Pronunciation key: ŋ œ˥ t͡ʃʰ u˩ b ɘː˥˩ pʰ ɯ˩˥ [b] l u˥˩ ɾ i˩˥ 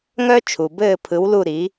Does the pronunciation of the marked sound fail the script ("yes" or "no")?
yes